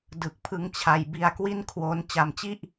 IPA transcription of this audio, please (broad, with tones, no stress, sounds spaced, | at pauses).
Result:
d ɯ˨˩ k̚ pʰ ɯ˧ ŋ t͡ɕʰ a˧ j b i˧ a̯ k w i˥˩ n kʰ w o˦˥ n t͡ɕ a˧ m t͡ɕ i˥˩ ʔ